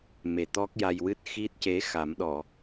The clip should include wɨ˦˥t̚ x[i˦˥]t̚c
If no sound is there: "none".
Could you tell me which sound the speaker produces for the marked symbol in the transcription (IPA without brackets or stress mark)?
i˦˥